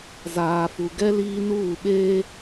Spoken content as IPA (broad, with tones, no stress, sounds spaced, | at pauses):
z aː˨ f u˨ ɡ ɛ˦ l iː˦ n uː˦˨ ɓ eː˦